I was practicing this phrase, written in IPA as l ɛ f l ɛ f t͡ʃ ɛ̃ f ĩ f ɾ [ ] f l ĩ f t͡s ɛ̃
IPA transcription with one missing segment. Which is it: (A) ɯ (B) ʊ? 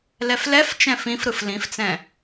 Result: A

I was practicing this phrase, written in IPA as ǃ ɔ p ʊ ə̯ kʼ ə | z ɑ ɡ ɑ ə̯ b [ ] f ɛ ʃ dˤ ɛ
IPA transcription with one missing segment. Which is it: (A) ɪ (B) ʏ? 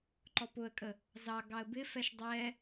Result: A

